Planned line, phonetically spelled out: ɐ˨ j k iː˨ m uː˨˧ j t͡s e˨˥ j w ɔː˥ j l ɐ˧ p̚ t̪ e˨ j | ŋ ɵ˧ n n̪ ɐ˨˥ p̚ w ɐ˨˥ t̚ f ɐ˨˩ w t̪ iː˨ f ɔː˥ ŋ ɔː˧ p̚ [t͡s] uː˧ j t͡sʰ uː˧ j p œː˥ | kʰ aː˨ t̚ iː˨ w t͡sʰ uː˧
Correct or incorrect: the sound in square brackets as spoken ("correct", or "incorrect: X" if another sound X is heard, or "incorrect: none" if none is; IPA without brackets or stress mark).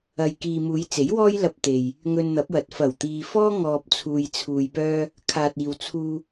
incorrect: t͡sʰ